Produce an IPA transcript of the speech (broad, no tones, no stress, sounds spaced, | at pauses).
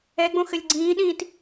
ɛ ɡ͡b õ x ɘ lʲ ɡ͡ǀ ĩː ɗ ĩː t